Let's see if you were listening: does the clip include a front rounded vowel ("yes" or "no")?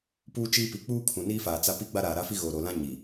no